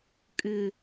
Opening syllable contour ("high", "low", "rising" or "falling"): low